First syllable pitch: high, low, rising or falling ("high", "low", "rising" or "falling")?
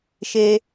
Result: high